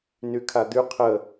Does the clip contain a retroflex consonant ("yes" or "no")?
no